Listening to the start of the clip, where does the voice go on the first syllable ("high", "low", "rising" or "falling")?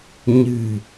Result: low